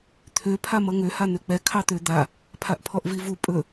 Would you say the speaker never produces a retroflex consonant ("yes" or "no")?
yes